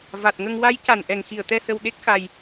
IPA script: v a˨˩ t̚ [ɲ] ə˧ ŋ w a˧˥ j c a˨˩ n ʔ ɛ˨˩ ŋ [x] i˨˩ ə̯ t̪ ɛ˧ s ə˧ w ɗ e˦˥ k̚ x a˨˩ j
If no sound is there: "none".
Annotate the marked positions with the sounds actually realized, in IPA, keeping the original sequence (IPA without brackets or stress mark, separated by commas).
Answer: ŋ, x